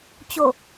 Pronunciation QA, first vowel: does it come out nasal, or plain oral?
oral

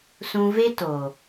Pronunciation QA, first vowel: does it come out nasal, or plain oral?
nasal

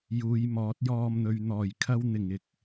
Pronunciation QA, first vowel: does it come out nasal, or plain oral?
oral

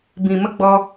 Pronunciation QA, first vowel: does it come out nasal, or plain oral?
nasal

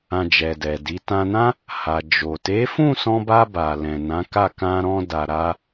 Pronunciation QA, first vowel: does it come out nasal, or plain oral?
nasal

